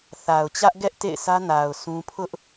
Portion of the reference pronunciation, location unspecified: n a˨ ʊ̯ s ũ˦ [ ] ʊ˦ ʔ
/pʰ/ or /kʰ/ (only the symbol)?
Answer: pʰ